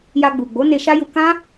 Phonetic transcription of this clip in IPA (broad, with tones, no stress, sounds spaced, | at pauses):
j a˧ ɡ͡b u˨ ɡ͡b o˨˦ n e˧ ʃ a˦ j u˧ k ã˦